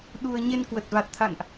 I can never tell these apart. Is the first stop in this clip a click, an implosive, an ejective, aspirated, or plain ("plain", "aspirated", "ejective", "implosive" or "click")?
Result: implosive